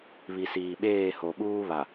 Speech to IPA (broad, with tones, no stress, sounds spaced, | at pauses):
β i˨ s iː˨ ɓ eː˦˨ h o˨ ɓ uː˦ β a˨